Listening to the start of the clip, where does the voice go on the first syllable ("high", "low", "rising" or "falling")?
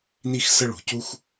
high